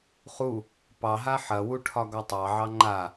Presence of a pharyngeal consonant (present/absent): present